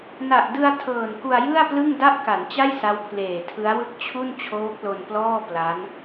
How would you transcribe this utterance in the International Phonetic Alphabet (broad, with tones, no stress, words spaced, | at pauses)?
na˨˩ʔdɯ˧a̯ tʰɤː˨˩nku˧a̯jɯ˥˩a̯plɯ˥˩ŋ da˥˩ʔka˩˦nt͡ɕa˥˩j sa˦˥wpʰleː˨˩tʰɯ˦˥a̯wɯ˥˩k̚ t͡ɕʰu˥˩n t͡ɕʰoː˦˥k̚lo˧nplɔː˥˩ pla˦˥n